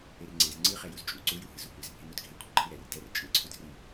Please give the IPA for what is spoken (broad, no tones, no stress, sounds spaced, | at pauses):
e r ŋ͡ǀ e z ŋ͡ǀ ɯ χ ɛ j u z t͡ʃʼ u ǀ u j u ɦ ɯ z u kʷ ɛ z bʱ e n o d ɡʱ e kʷʰ ɯ ǃʰ i ɾ ɛ r d ɛ r t͡ʃʼ ɯ ǀʰ u d r i